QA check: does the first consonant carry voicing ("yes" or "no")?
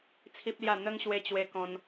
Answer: no